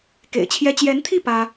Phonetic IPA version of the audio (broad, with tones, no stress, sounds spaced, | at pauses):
k ḛ˨˩ ɪ̯ t͡ɕʰ j ɛ˥ t͡ɕ j ɛ˧˥ n t̪ʰ i˥˩ p ä˥